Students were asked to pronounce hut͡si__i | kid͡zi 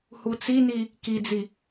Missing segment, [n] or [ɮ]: n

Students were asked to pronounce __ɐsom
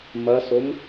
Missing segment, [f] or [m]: m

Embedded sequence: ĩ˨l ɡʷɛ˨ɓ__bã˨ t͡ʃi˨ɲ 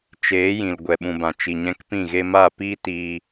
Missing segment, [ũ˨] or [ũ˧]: ũ˨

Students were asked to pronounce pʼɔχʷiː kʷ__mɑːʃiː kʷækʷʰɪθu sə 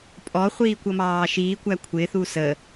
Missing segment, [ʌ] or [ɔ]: ʌ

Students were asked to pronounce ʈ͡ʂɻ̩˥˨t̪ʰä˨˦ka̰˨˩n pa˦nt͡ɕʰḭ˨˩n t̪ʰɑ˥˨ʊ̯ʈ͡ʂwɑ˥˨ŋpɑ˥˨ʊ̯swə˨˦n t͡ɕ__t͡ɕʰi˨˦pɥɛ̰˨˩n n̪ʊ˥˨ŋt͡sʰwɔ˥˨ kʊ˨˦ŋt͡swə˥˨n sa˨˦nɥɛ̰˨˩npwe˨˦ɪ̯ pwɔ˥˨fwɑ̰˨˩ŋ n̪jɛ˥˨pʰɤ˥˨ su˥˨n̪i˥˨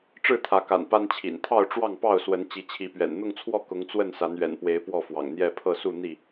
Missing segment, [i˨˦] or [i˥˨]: i˨˦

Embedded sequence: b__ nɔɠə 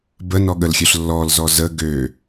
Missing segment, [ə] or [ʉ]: ə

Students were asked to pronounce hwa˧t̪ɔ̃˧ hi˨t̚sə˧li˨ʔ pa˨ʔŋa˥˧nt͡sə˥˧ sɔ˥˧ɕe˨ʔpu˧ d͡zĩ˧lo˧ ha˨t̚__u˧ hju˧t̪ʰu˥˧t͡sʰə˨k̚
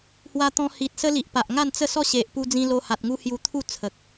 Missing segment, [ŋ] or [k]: ŋ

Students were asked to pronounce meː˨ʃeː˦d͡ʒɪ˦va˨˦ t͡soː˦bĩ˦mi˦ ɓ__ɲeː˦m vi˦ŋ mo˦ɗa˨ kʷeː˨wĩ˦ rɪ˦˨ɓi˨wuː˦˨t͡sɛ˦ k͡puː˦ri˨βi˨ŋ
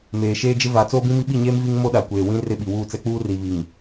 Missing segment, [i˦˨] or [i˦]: i˦˨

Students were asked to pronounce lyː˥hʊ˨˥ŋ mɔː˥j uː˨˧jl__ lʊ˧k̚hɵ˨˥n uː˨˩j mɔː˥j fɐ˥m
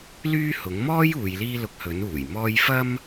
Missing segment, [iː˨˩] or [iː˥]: iː˥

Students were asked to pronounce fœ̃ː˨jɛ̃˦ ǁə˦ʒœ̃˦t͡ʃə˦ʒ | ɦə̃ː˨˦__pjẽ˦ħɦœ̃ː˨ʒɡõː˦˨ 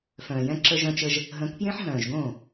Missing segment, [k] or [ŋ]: k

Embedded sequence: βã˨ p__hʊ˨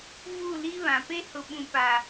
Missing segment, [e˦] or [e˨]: e˦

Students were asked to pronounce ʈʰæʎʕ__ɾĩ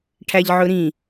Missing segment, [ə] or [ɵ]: ɵ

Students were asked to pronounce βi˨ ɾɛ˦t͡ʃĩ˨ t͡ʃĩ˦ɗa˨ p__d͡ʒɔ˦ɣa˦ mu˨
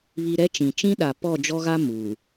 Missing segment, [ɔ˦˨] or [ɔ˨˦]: ɔ˦˨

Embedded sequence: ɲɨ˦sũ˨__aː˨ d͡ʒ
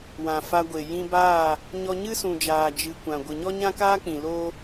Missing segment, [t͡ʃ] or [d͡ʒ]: d͡ʒ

